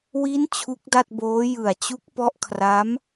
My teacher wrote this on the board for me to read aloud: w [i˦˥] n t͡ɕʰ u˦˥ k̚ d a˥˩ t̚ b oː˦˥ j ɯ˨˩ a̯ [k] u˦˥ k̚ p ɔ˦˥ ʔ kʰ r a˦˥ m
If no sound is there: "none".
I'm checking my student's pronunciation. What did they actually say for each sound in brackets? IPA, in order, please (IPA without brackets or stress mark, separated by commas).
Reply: i˦˥, t͡ɕ